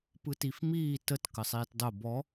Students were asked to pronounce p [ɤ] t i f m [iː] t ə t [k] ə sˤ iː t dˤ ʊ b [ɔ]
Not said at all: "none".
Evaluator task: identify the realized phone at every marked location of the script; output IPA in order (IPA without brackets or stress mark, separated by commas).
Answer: ɯ, iː, k, ɔ